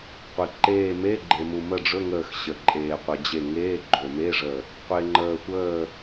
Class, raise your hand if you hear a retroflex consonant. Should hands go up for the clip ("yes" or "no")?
yes